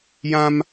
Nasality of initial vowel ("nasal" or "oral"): nasal